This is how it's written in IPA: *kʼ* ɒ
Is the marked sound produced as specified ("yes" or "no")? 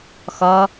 no